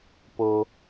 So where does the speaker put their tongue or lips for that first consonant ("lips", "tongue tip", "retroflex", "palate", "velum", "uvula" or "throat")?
lips